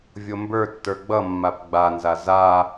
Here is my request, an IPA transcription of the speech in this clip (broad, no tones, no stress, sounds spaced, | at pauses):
vʲ o m b ə˞ tː ə˞ ɡ͡b ʌ mː a p ɡ͡b a n z a z a